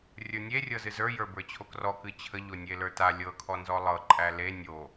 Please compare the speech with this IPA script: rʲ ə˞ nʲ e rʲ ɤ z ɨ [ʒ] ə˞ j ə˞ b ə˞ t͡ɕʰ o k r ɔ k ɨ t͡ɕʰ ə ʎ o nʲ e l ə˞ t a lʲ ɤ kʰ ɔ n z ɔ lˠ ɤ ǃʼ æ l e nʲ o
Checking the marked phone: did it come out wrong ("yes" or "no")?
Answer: yes